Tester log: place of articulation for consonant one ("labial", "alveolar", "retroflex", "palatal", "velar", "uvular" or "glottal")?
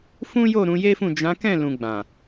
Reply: labial